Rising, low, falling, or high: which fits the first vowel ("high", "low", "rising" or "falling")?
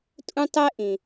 high